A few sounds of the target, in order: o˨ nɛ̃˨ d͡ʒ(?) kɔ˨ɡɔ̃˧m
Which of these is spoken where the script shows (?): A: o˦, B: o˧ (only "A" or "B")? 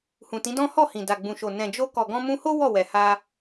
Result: B